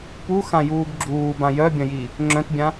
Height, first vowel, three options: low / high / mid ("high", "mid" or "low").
high